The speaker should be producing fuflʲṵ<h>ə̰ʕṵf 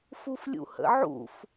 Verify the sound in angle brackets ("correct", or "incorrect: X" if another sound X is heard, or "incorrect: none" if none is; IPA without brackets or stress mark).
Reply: correct